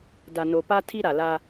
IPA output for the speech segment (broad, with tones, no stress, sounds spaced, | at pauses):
d a˨ n o˨ p a˦ tʰ i˦ ɾ a˨ l a˦